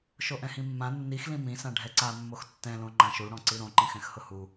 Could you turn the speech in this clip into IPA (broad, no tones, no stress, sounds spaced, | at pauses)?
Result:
ʃ o ʔ ɛ̃ h ĩ mː ã nː i x l ĩ m ĩ s ã ɖʱ ɛ ǀ a mː o x tː ɛ̃ l õ ŋ͡ǃ ã ʃ u ɽ ɔ̃ ǀ i ɾ õ ǃ ẽ x ɛ̃ x h ʊ h u